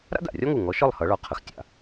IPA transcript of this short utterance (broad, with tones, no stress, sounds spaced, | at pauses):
ɾ a̰˥ d a̰˩ rʲ ɒ˥ ŋ u˧˩ ŋ ɔ˨˥ ʃ ɒ˥˨ lˠ h ʌ˨˥ ɭ ɒ˨˥ qʰ ə˩ x tʲ a̰˩